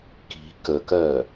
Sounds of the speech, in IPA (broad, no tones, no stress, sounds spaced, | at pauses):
k i̤ k ə k ɜ